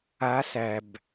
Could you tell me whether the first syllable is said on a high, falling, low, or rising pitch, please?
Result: rising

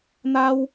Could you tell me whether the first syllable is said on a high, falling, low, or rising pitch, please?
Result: high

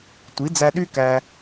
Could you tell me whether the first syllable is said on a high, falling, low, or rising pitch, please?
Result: rising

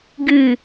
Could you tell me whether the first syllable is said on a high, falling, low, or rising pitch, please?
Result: falling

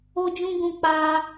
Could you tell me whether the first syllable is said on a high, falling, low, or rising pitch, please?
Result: high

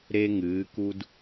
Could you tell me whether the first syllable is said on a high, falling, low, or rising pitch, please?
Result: high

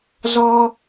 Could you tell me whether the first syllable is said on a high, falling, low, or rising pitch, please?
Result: high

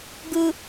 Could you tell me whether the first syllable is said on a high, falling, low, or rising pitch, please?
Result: low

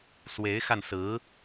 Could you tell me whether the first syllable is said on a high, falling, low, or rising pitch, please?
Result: rising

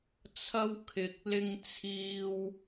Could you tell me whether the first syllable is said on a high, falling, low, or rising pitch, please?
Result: high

